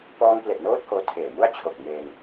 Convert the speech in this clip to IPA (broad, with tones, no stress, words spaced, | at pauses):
pɔː˧ŋple˨˩ʔnoː˦˥t̚ hoː˧tʰeː˨˩mu˥˩a̯ t͡ɕʰo˨˩k̚ meː˧ŋ